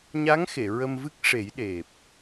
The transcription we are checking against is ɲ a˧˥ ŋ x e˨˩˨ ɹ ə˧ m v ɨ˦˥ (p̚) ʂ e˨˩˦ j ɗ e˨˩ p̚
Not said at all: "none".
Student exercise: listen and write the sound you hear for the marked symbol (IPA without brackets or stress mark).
k̚